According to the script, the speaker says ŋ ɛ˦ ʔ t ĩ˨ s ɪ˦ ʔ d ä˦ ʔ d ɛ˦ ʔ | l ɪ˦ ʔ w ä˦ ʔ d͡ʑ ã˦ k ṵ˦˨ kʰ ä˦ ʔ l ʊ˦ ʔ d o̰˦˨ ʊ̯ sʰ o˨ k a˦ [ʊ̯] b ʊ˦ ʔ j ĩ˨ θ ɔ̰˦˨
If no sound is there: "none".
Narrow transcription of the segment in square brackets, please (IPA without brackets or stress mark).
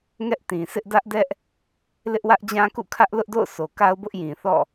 ʊ̯